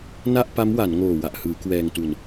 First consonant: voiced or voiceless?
voiced